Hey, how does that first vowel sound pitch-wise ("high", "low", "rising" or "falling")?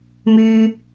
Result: high